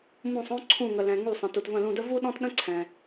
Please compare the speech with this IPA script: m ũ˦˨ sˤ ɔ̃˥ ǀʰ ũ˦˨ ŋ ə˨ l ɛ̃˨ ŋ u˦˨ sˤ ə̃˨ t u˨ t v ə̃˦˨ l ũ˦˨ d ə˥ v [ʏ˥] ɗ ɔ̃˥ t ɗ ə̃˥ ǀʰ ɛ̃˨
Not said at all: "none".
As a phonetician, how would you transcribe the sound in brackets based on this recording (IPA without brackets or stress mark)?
u˥